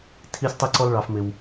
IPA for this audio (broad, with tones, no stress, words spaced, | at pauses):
tʰi˥sʲtˤi˥ǀɔ˥l ɭɑ˥fmɪ˥w